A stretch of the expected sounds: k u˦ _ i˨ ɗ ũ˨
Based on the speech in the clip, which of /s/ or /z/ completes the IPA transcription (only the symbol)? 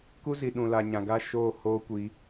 z